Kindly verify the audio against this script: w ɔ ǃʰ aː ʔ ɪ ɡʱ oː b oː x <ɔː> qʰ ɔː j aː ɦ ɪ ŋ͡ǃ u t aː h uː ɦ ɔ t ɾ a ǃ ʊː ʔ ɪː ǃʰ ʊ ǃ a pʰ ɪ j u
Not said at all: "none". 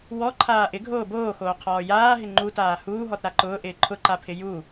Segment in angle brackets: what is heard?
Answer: oː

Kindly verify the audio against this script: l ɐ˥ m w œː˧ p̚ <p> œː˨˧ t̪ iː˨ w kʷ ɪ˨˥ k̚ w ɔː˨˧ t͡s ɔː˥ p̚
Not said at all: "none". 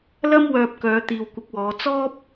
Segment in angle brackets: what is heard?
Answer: k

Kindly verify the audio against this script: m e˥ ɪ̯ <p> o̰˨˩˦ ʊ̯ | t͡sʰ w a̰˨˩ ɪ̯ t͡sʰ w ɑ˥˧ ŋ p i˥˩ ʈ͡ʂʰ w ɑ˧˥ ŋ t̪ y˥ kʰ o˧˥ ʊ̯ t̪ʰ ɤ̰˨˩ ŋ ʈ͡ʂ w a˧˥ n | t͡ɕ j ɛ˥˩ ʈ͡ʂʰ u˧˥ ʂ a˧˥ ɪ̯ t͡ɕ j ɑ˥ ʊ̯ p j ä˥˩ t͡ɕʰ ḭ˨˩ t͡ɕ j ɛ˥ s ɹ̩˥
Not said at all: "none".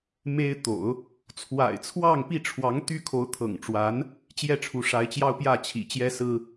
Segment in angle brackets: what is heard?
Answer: t̪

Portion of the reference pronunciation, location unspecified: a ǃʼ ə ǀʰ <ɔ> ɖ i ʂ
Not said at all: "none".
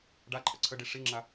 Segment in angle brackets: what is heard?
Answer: ə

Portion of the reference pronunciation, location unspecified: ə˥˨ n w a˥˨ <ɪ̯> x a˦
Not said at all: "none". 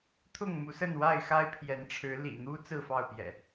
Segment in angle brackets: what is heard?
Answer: ɪ̯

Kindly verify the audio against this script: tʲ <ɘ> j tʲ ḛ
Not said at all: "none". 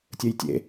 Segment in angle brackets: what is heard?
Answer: ɘ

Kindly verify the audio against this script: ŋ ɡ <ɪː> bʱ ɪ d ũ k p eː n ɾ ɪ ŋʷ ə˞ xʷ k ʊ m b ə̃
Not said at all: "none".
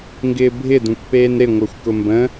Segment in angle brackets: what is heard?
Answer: ɪː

